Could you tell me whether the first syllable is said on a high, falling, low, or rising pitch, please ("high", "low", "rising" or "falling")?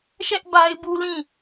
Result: high